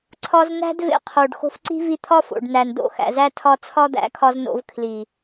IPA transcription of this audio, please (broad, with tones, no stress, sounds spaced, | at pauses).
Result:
ǀʰ ɒ˧ z n æ̤˦ d v ḛ˧ qʰ o˨ ɖ x o̤˧ f ǀ i̤˦ v i˧ t̪ʰ ɒ˦ f o̰˨ ɖ n æ˨ n d o̰˦˨ x æ̰˨ z æ˧ tʰ ɒ˦ t͡sʰ ɒ˦ d̪ æ̰˨˦ kʰ ɒ˧ z n o̰˧ v kʰ l i˨